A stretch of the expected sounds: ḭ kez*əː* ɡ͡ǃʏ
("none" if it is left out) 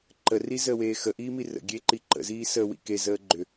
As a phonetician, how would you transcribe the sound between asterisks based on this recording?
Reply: əː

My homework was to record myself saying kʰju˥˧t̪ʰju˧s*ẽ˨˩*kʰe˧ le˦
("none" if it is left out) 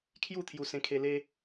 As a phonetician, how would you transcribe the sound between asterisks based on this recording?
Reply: ẽ˧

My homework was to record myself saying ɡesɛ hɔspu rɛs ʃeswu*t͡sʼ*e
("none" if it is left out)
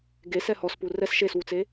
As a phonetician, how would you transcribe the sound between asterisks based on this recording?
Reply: t͡s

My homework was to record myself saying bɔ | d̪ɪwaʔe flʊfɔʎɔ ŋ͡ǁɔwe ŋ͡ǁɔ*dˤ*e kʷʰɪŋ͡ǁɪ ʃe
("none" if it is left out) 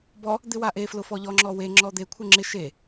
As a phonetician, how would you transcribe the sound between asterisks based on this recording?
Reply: d̪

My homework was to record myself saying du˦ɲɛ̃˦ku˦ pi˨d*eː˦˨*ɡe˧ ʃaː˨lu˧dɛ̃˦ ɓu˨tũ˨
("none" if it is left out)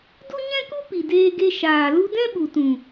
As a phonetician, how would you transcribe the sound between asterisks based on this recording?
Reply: eː˧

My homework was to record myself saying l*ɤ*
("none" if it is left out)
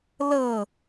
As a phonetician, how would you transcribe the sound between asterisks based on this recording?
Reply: ɤ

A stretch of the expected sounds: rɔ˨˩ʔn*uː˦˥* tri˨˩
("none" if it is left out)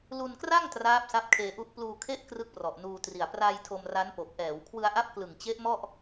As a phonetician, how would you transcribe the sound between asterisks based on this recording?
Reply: uː˧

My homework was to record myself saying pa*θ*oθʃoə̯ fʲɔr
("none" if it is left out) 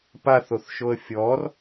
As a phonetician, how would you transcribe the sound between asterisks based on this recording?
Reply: θ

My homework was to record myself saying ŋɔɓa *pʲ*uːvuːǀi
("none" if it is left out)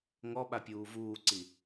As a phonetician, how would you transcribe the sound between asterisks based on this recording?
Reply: pʲ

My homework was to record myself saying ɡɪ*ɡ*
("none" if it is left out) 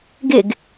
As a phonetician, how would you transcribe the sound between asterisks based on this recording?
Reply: ɡ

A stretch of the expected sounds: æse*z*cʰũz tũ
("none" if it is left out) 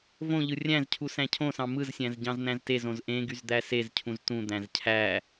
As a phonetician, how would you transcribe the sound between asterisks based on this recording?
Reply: z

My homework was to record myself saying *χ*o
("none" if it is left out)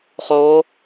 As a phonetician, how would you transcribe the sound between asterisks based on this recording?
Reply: χ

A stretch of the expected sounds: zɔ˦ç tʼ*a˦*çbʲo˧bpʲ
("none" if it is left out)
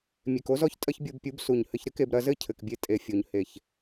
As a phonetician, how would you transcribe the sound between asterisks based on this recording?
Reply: ɐ˦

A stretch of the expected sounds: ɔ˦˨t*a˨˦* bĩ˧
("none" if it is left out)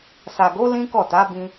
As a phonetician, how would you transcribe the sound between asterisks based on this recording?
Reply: a˨˦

